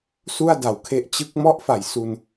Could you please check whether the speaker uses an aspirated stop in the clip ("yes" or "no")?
yes